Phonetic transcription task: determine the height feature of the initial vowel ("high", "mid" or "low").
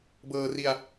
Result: mid